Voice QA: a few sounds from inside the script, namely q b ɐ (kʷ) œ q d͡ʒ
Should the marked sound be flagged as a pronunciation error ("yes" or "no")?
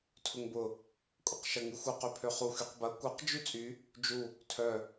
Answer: no